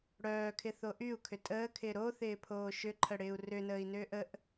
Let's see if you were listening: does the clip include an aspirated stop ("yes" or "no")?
yes